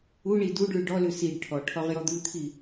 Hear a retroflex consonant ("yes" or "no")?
yes